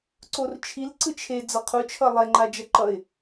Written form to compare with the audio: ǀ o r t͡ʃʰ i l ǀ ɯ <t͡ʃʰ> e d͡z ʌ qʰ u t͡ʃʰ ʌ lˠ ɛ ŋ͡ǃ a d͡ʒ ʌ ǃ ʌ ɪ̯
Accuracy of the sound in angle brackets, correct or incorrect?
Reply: correct